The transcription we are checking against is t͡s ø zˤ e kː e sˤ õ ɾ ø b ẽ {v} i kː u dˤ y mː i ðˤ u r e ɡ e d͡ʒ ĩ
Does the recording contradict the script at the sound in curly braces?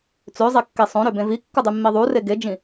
no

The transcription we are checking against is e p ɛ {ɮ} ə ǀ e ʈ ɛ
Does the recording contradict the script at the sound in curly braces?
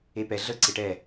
no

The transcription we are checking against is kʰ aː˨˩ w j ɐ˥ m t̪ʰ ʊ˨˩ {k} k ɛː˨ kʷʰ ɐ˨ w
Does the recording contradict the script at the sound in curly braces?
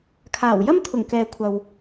yes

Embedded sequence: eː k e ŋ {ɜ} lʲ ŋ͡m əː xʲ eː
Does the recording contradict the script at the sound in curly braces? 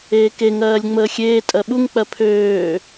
yes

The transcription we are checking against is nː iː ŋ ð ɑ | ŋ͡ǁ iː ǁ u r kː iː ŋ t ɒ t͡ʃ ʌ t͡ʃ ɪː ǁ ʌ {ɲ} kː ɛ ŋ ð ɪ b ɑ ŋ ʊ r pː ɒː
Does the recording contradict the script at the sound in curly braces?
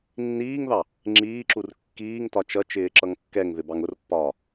yes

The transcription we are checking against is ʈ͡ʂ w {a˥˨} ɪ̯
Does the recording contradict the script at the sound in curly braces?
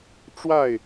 no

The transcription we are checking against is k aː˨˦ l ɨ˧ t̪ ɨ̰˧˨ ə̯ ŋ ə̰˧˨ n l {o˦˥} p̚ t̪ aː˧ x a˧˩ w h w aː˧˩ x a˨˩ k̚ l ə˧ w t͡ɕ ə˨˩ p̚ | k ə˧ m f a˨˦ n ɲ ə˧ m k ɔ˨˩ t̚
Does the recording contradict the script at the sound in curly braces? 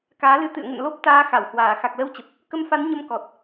no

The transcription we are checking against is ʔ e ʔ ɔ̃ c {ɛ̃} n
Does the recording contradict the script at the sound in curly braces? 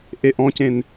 yes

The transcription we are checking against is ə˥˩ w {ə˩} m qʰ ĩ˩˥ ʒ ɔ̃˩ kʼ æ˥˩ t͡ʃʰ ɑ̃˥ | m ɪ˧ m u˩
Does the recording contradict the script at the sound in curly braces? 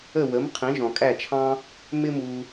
yes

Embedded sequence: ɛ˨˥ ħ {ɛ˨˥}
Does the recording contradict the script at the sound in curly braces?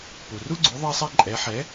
no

